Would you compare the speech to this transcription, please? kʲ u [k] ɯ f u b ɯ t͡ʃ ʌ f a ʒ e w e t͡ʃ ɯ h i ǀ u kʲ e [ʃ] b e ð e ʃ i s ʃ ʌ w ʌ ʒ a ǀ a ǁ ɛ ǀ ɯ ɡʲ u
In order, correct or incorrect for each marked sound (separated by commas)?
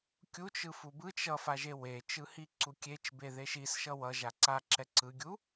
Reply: incorrect, incorrect